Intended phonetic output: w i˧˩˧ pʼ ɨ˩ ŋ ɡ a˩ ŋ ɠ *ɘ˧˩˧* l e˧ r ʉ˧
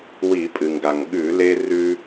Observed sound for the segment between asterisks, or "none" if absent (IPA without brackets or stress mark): ʉ˧˩˧